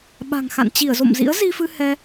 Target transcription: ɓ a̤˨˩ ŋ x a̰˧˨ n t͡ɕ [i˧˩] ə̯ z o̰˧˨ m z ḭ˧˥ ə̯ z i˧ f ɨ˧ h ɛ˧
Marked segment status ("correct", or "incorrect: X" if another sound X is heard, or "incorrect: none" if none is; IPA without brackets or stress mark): correct